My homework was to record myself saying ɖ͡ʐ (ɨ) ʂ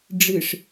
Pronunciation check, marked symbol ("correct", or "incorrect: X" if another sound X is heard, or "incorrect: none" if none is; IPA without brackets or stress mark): correct